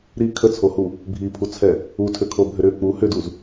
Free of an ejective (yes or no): yes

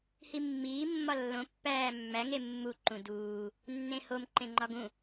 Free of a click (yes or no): no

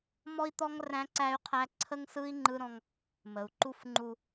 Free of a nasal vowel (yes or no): no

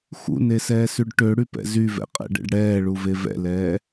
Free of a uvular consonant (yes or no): no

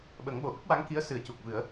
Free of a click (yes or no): yes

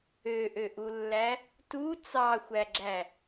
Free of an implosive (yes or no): yes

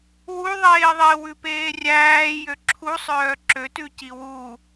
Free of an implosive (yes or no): yes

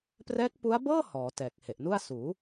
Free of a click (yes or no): yes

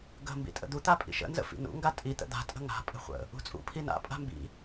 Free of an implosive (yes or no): yes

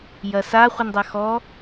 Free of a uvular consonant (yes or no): no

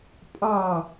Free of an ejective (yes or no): no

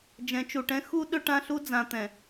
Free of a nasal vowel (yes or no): no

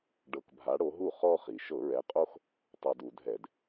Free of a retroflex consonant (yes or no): no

